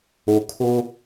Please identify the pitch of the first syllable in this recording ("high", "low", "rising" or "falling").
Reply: low